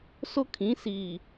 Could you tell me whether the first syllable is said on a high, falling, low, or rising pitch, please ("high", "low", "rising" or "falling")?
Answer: high